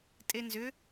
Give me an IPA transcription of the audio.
tʼ e n z ʏ

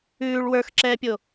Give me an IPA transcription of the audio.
ʉː ɭ w ə˞ x ǁ ɛː pʲ o

